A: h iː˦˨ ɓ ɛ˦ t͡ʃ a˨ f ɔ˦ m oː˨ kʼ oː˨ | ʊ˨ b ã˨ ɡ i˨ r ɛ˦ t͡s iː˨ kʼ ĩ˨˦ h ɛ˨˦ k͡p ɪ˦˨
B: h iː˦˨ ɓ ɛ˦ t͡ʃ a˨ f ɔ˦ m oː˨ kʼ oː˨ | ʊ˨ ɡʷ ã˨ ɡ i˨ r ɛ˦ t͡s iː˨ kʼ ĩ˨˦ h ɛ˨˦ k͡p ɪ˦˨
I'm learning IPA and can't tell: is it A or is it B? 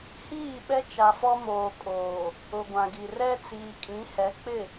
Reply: B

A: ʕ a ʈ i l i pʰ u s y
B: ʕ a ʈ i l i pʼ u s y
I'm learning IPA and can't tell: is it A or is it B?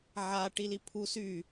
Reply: A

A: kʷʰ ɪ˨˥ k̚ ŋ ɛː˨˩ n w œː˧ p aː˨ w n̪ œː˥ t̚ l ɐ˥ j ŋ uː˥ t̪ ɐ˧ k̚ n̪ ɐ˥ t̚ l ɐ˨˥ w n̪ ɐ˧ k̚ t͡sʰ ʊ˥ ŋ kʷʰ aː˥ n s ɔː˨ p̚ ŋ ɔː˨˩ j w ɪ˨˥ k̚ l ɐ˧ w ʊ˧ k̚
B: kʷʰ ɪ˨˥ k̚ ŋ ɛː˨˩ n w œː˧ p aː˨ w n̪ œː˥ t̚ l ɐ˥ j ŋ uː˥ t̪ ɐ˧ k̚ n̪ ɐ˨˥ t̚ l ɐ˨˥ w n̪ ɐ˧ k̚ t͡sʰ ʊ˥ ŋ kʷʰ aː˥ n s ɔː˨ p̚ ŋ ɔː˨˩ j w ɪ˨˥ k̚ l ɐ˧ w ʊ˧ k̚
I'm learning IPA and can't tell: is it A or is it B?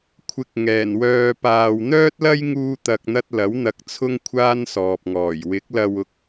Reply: A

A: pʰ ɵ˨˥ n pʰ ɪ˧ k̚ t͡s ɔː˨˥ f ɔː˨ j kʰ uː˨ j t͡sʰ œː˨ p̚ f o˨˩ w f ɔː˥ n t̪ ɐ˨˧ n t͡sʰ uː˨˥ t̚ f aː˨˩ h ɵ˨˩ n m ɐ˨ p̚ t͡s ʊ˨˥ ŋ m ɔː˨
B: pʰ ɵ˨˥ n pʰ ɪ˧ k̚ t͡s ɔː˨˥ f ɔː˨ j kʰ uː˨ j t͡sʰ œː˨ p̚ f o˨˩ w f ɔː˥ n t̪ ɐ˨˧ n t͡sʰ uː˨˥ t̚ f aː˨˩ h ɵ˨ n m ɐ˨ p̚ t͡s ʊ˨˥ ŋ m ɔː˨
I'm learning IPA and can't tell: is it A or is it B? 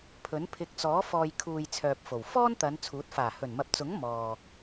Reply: A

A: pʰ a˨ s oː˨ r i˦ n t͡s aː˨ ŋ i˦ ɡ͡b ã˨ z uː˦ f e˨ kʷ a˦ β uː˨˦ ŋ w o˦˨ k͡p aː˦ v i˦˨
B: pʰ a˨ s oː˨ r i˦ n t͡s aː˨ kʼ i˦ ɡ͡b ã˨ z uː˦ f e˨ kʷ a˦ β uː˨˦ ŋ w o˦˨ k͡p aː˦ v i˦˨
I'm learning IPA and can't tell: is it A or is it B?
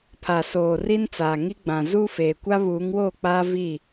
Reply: A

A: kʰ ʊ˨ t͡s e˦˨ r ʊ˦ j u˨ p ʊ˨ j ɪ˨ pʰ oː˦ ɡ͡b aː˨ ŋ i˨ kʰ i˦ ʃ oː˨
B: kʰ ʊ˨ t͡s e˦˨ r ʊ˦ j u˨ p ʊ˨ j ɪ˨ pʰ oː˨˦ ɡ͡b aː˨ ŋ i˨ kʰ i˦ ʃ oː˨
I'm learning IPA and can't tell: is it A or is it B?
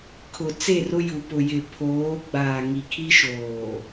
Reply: B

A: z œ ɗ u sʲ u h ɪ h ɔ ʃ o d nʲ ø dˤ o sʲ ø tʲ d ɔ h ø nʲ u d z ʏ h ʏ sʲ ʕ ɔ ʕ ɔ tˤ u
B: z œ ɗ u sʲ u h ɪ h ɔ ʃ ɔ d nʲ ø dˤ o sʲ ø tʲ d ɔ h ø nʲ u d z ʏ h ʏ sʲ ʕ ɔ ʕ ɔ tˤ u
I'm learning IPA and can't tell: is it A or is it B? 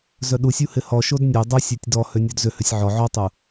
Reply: A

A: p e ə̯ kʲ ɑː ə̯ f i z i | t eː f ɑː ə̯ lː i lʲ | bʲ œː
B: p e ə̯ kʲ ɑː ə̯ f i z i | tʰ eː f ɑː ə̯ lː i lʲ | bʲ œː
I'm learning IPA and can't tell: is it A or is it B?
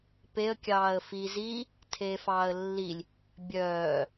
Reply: B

